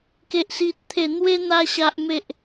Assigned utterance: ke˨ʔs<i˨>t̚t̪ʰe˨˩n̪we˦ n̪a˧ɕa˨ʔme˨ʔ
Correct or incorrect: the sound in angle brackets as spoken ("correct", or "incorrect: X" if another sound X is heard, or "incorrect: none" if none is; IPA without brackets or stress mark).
correct